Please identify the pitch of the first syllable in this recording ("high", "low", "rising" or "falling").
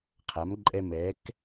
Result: rising